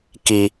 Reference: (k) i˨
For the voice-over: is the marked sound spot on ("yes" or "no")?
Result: yes